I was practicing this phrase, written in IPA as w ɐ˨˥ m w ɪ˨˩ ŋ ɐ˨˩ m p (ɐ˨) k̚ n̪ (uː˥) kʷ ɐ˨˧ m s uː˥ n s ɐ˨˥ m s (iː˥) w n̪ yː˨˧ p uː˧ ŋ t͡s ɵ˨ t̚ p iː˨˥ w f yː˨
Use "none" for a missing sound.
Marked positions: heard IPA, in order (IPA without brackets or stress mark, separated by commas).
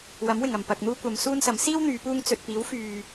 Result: ɐ˨, uː˥, iː˥